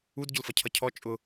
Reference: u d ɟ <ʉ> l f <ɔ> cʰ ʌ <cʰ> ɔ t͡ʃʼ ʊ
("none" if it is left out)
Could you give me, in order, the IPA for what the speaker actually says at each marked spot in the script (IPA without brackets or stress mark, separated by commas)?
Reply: ʊ, ʌ, cʰ